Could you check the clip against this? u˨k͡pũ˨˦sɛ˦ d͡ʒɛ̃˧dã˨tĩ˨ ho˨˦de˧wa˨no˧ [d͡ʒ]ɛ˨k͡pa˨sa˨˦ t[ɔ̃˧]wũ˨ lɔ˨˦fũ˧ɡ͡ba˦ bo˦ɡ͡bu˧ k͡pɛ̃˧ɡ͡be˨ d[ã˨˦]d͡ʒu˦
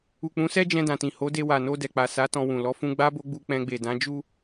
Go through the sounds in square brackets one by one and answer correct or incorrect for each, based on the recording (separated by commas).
incorrect, correct, correct